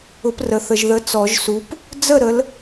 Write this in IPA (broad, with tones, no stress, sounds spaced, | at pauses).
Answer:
ʊ˨˦ p r ə˨ θ ə˨ ʒ ð ə˨˦ t͡s ɔ˨˩˦ ʒ s u˨˦ p | d͡z ə˥˩ ɾ ə˨˦ l